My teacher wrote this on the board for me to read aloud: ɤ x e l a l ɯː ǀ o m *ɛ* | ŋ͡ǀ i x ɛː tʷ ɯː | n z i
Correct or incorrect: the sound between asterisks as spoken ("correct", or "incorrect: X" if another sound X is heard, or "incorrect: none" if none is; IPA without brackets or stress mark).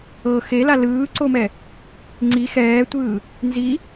correct